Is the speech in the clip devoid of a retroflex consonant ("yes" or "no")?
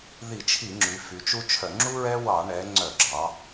no